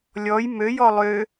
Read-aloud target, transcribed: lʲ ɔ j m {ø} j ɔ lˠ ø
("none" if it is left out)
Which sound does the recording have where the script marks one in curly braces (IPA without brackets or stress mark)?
ø